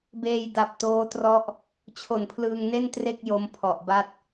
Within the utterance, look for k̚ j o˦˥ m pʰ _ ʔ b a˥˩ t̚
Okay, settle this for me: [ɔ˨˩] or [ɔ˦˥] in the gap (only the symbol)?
ɔ˨˩